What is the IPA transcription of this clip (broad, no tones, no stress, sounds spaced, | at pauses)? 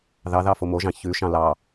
ð ɑ ð ɑ f o m o ʒ ɑ̃ ç ʉ ʃ ɑ̃ l ɑ